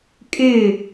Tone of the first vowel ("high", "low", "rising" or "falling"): falling